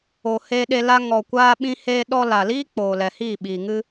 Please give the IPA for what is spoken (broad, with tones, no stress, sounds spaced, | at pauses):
o˨ h e˧ ɗ e˧ l a˧ ŋ ɔ˨ kʷ aː˧ ɓ ĩ˧ h eː˧ ɗ ɔ˧ l a˨ l iː˦ k͡p oː˨ l ɛ˨ h iː˦˨ ɓ iː˨ ŋ ɨ˦